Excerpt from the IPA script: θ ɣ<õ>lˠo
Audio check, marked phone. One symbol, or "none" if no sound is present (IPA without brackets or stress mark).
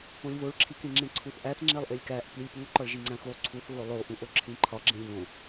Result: o